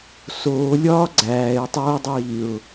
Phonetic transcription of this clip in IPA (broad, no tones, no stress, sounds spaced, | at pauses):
s oː lʲ ɒː ɡ͡ǀ æː ɪ̯ tˤ oː dˤ iː ʊ̯